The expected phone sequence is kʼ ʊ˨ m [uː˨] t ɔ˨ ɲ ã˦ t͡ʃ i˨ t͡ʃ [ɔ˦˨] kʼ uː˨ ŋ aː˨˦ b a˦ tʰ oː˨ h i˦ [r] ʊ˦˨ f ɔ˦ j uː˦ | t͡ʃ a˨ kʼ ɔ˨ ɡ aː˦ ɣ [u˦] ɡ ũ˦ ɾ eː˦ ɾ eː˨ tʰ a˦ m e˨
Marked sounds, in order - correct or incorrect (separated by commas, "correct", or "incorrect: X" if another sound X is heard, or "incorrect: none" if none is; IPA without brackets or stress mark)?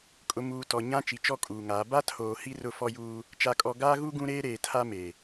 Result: correct, correct, correct, correct